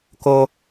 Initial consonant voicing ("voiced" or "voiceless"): voiceless